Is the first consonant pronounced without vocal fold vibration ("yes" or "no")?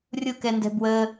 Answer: no